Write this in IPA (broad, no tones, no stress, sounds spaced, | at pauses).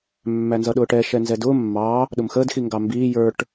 mː æ n z ʌ ɗ ʊː ʈ ɛ ʃ ɛ n z ɛ d ʊː mː ɑ | ɗ ʊ m x ə d x i ŋ ɡ ɑ m b iː j ə˞ ʈ